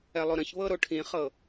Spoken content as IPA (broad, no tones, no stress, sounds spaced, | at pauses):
ɛ lˠ o ɾ ə̃ ç β ɤ ɾ o ʈʰ ĩ χ ɤ